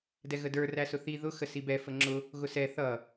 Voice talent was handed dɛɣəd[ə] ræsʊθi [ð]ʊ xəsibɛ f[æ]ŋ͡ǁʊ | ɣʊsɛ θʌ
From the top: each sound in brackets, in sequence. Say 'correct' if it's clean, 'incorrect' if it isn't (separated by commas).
incorrect, correct, incorrect